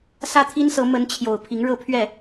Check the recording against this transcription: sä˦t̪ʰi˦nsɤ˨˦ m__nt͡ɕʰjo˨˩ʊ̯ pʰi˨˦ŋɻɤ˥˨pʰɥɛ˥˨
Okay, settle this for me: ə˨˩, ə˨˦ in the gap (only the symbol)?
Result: ə˨˦